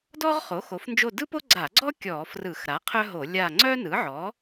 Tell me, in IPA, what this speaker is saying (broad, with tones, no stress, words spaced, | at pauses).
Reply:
dɔ˥ʁ χo˩˥xo˩˥fnd͡ʒo˦˨ dɯ˥po˥ɡ͡ǀa˧˩˧ɡ͡ǀɔ˥ kʲɔ˧˩˧frɯ˧˩˧xɾa˩˥ qʰœ˥ɦo˧˩˧lʲa˦˨ ŋ͡ǀœ˥nɯ˩˥ʕɔ˩˥